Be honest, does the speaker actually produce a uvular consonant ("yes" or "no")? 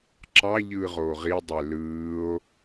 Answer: yes